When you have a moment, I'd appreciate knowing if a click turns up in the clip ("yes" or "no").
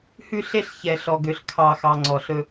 yes